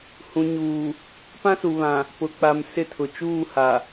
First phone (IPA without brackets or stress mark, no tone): h